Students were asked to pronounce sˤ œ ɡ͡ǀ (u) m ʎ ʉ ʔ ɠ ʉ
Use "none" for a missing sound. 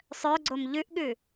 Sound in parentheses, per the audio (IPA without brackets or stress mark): o